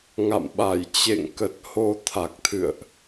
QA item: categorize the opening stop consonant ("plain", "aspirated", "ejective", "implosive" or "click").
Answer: implosive